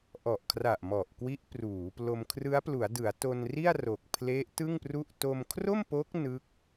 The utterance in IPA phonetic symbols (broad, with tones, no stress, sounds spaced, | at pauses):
ʔ ɔ˨˩ ʔ kʰ r a˨˩ ʔ m ɔ˨˩ ʔ k w i˦˥ ʔ p r uː˩˦ p l o˧ m kʰ r ɯ˦˥ a̯ p l u˩˦ a̯ d ɯ˩˦ a̯ t o˧ n r i˥˩ a̯ r o˨˩ k̚ pʰ l e˦˥ ʔ t ɯ˥˩ ŋ p r u˥˩ ʔ t o˧ m kʰ r o˥˩ m p o˦˥ k̚ n ɯ˦˥ k̚